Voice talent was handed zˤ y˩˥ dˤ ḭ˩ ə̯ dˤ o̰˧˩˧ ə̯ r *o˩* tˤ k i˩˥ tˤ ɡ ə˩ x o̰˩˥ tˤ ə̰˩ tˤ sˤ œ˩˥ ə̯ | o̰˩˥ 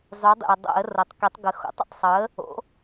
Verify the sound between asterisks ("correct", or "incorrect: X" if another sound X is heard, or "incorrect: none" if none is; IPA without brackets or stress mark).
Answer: correct